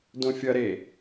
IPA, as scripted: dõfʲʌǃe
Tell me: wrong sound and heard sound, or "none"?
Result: ǃ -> ɾ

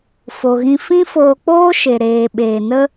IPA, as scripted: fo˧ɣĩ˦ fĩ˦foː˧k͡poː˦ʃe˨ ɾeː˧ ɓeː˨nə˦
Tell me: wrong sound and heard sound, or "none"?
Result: none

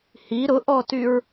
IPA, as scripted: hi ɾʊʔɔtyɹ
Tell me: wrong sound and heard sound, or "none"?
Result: none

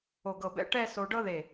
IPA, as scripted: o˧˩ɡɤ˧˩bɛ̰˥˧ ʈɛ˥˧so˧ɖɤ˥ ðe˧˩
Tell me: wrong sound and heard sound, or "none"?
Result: none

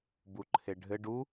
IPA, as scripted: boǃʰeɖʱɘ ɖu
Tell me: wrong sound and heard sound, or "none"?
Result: o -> u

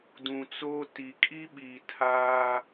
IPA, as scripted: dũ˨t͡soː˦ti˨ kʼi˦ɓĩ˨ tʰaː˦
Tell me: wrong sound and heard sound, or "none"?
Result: ĩ˨ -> i˨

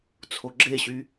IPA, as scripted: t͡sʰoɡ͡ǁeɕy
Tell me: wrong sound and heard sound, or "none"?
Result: none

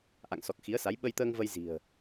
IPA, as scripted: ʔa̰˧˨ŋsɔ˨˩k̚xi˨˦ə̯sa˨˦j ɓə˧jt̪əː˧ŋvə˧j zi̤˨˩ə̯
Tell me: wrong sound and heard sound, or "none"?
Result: none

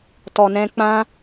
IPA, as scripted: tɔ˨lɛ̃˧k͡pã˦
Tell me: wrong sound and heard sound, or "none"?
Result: l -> n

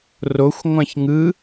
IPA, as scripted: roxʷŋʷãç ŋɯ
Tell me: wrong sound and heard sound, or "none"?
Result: none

